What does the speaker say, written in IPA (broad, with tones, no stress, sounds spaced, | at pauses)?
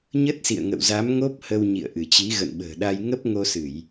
ɲ ə˦˥ t̚ s ḭ˧˨ ə̯ ŋ ə̰˧˨ w z a˨˦ m ŋ o˦˥ p̚ h ə˧ w ɲ ḭ˧˨ ə̯ ʔ ɨ˧˩ t͡ɕ i˨˦ ɣ ə̰˧˨ n ɓ ə̤ː˨˩ ɗ a˧ j ŋ ə˦˥ p̚ ŋ o˧ s ɨ˧˩˨ j